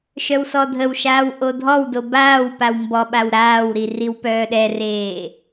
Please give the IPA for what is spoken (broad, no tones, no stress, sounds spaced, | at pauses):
ʃ œ w s ɔ dʱ ə w ʃ aː w ʔ o dʱ ɔ w d o b aː w p a w m b ɔ ɓ a w ɾ aː w ɾ i r i w p œː ɗ ɛ r eː